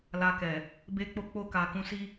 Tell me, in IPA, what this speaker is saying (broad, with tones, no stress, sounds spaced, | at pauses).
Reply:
l a˧ k ɛ˨ | b e˦ k͡p o˦ k͡p o˦˨ k a˨ k ũ˧ s i˦